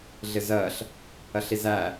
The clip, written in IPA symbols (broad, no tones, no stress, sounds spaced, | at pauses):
ɮ ɪ z ɜ ɬ | ɜ ɬ i z æ